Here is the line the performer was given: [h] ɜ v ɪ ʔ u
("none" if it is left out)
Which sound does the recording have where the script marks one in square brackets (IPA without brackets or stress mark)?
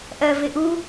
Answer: ʔ